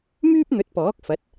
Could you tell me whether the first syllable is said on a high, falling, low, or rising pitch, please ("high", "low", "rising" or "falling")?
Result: high